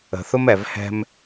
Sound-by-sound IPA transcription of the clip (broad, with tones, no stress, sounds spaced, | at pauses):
ə̤˨ θ ʊ˦ m ɛ˨ v h ɛ̤˦ m